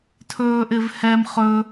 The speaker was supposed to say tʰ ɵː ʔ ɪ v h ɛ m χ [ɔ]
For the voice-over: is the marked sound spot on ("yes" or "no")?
no